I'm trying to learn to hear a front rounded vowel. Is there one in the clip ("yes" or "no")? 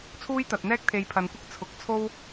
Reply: no